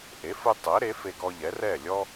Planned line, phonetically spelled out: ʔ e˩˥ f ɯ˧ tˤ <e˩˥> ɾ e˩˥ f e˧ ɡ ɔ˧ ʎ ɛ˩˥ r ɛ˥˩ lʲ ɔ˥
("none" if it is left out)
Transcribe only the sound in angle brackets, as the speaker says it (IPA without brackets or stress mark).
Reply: ɛ˩˥